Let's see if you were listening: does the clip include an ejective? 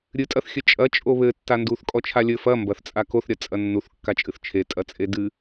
yes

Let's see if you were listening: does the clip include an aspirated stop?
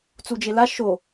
no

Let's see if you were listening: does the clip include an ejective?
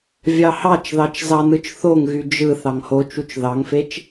no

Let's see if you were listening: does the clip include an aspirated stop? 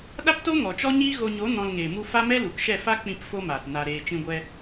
no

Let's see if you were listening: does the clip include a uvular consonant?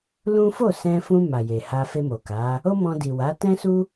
no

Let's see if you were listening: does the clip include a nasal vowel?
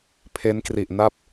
no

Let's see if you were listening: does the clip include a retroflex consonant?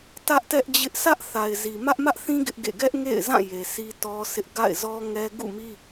no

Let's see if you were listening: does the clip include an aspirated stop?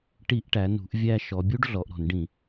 no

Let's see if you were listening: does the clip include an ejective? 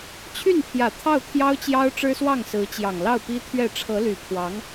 no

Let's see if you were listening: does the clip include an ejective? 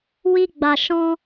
no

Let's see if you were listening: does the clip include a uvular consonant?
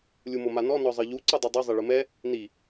no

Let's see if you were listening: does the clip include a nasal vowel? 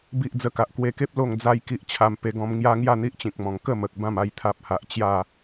yes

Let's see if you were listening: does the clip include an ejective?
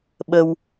no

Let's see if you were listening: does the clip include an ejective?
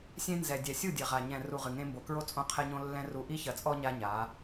yes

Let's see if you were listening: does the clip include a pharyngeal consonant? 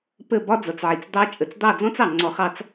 yes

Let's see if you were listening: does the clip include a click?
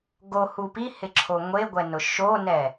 yes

